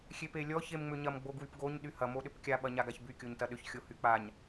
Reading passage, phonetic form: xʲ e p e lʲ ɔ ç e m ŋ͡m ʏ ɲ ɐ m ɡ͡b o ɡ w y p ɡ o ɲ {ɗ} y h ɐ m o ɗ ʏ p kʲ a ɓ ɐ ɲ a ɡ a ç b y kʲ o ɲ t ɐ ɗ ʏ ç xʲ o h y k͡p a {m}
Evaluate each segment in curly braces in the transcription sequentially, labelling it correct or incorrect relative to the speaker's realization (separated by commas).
correct, incorrect